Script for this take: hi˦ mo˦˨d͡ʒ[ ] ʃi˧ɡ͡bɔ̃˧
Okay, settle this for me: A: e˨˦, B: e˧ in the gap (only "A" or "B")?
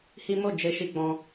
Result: B